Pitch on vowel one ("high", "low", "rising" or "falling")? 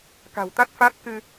low